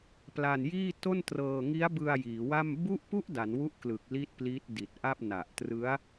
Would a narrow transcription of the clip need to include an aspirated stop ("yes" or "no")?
no